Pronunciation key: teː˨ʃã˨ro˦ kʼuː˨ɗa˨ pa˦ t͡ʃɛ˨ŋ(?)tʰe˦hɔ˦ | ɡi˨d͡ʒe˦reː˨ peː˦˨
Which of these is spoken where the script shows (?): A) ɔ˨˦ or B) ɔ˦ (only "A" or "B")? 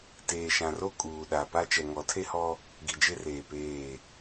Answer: A